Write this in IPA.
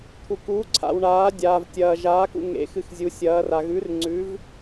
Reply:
t̪ʰ u˩ k uː˩˧ ǀʰ a̰˩ w ɳ aː˩˧ dʲ aː˩ v tʲ ɐː˩ ʒ aː˩˧ k ṵ˩ ŋ ḛ˩˧ x ɨ˩ x zʲ u˩˧ sʲ ɐː˩˧ r a˩ ɣ ʉ˩˧ r ŋ͡ǀ ʉ˩˧ v

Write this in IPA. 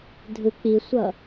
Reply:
dʱ ɯ k͡p i sʷ ʌ

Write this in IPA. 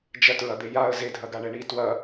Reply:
d͡ʒ ɐ t ɹ ɐ d̪ e j a ə̯ z e dʱ ɐ ɡ a ɳ ɛ ɳ i t w ɐ

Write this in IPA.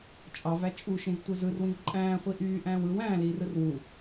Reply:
t͡ʃʼ ɑ v æ t͡ʃʼ u ʃ ĩ z tʷ ɯ z ɯ r w ĩ v ǃʼ æ̃ː χʷ i ʔ yː ʔ æ̃ː w ɯ w æ̃ː l iː r ɯ r w u

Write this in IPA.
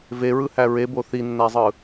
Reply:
v e ɹ ɯ h æ ɹ e b o θ i nː æ zˤ ɯ

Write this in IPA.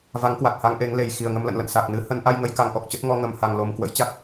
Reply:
v a˨˦ ŋ k w a˨˩ t̚ h a˧ ŋ ʔ e˨˦ ŋ l e˨˩ j x i˨˩ ə̯ ŋ ə˧ m l ə̰˧˨ n l ə̰˧˨ n s a˨˩ k̚ n ɨ˧ h ə˧ n ʔ a˧ j ŋ ə˧ j k a˧ ŋ ʔ ɔ˨˩ k̚ t͡ɕ ə˦˥ t̚ ŋ ɔ˧ ŋ ə˨˩ m h a˨˩ ŋ l o˨˩ m k w ə̰˧˥ j t͡ɕ a˦˥ k̚

